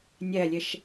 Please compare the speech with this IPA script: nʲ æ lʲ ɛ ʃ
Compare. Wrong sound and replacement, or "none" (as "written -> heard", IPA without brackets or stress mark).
none